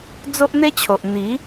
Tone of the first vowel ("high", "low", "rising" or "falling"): high